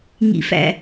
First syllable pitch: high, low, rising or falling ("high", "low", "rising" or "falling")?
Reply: low